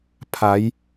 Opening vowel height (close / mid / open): open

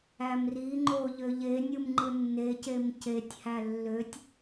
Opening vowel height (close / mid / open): open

